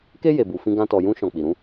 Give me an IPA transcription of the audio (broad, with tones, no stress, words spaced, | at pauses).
ke˦ je˧bu˧fĩ˦ ɡã˦tɔ˧ jũ˧ʃɔ̃˨ k͡pi˨ɾũ˨˦